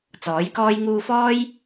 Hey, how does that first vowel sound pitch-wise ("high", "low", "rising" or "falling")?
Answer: rising